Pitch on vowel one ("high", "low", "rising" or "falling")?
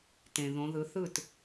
low